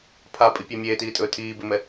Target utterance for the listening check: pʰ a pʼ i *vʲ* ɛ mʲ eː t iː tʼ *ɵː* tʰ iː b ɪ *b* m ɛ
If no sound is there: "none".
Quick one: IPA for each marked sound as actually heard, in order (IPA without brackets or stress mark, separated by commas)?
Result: pʲ, ɵː, none